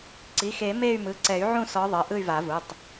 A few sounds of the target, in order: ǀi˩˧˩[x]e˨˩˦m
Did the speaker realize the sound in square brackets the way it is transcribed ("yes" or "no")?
yes